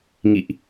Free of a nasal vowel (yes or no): yes